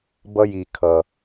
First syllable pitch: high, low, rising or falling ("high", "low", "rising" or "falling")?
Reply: high